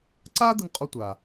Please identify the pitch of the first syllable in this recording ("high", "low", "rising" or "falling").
high